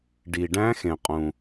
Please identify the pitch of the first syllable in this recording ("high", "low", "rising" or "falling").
low